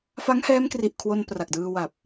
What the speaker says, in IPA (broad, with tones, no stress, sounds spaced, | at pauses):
f a˦˥ ŋ h ɛː˦˥ m k r i˨˩ ʔ kʰ w o˧ n p r a˨˩ k̚ d ɯː˧ w a˨˩ p̚